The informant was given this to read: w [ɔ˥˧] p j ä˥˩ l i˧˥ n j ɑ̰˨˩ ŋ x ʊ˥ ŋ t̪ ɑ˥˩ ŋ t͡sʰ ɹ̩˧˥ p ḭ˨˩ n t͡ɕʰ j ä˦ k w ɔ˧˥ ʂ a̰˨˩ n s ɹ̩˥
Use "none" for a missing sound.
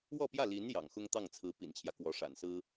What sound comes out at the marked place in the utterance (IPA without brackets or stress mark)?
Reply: ɔ˥˧